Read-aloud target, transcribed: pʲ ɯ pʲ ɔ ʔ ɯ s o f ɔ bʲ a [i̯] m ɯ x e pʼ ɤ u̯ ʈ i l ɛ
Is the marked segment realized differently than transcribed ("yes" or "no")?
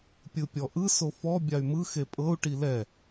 yes